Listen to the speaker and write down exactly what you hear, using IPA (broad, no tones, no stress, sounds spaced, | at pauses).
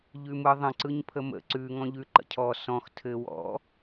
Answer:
ʎ ʉ m ɯ ðˤ ə̃ ǀ ɯ ɲ pʰ ə m ə̰ ǀ ʉ ŋ ɔ̃ ʎ ʉ ǃ ə̰ cʰ ɔ s ɔ̃ x tʰ ɘ w ɔ̰